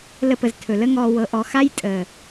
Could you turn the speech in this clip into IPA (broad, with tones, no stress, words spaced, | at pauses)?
lə˧pə˨z tʰɵ˨lə˦ŋɔː˧ wɤ˧ʔɔ˧ xa˦j tʼəː˨